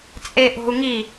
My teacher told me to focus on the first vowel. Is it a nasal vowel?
no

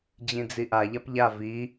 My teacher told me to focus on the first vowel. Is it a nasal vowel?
yes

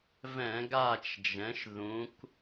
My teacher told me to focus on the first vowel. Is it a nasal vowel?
yes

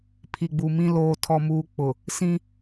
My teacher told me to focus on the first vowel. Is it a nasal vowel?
no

